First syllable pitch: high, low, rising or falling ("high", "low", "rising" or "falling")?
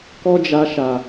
high